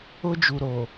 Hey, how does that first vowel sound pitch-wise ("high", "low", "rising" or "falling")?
high